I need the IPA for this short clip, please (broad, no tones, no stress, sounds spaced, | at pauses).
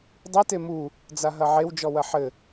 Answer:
dˤ i t e m u | d͡z a ɦ ɐ ʕ e w d͡ʒ ɔ w ɐ ħ ɘ